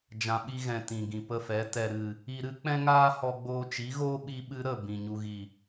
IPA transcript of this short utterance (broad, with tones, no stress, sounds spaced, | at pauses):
d͡ʒ ã˨ ɓ i˧ ɣ ɛ̃˨ t ĩ˨ ɡ ĩ˨ p ə˧ f ɛ˨˦ t ɛ˨ ɾ ɨ˨ | i˧ ɾ ɨ˦ k͡p ɛ̃˦ ŋ aː˦ h ɔ˧ ɡ͡b oː˧ t͡ʃ i˨˦ ɣ oː˦ ɓ i˧ ɓ ɨ˧ ɾ ə˦˨ b ĩ˨ ɲ u˨ ɣ i˨